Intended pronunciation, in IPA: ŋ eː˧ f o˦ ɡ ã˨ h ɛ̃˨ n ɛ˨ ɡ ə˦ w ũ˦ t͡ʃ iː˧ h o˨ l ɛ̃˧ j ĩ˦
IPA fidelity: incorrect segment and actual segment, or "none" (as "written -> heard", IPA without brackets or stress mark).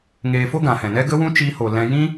ɛ˨ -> ɛ˦